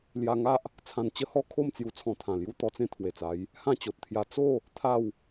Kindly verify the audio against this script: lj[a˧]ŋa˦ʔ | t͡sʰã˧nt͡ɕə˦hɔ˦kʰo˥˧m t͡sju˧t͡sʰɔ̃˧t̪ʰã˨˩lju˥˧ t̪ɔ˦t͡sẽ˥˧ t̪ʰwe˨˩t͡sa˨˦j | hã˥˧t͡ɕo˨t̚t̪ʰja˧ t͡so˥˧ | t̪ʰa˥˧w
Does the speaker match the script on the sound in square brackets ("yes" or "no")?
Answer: yes